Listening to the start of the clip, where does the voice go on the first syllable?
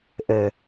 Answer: low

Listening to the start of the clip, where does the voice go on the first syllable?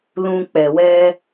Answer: low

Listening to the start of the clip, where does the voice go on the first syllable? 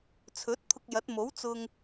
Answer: rising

